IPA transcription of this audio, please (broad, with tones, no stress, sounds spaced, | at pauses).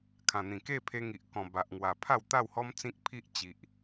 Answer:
kʰ ã˨˩ n̪ ĩ˨˩ k e˥˧ pʰ e˧ ŋ i˨ ʔ k ɔ̃˨˩ b a˨ ʔ ŋ w a˨˩ pʰ a˥˧ w t̪ a˥˧ w h ɔ˦ m t͡s ĩ˦ k̚ pʰ i˦ ʔ t͡ɕ i˨ ʔ